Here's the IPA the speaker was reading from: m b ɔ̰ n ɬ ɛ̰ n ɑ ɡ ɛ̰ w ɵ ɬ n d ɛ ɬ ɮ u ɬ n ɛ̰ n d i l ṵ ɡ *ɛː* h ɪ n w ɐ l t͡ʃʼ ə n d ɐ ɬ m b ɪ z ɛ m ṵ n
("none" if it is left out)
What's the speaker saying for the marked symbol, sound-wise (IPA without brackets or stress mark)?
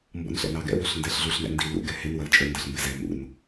ɛ